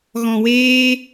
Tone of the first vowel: low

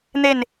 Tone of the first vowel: falling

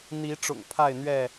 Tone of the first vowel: rising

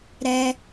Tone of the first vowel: high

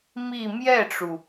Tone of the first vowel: falling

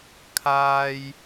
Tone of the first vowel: high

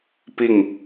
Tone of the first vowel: falling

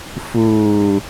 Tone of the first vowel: low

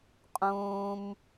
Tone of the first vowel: high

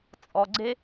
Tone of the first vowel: low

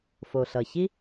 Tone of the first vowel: low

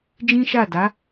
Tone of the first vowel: high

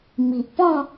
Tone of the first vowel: low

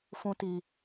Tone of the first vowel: high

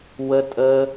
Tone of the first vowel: high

